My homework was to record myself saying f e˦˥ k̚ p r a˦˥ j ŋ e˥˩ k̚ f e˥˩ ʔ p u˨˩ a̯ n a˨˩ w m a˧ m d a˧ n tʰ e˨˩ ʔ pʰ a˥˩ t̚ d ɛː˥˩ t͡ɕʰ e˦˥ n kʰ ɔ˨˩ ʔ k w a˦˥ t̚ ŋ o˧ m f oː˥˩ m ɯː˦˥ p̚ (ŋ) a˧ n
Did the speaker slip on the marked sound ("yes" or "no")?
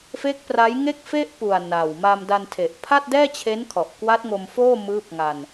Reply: no